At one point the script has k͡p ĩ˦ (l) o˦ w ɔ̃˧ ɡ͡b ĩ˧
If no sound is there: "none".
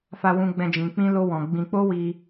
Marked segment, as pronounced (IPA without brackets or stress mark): l